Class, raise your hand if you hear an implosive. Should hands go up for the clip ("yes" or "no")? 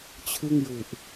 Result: no